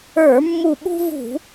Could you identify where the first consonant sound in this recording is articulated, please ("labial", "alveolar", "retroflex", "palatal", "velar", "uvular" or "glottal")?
labial